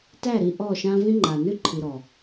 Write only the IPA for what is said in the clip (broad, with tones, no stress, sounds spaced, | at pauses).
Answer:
t æ˦˨ ɾ i˧ ʔ ɔ˦˨ ʃ ã˦ v ĩ˦ ŋ͡ǃ a˨ n ʉ˦ ǃʰ i˨ ɾ ɔ˨